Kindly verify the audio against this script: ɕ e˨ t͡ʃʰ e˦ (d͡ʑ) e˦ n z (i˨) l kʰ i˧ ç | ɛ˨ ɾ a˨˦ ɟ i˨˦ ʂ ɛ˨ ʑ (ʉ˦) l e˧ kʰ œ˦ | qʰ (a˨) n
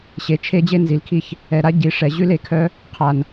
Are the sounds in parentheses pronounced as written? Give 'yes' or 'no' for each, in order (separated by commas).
yes, yes, yes, yes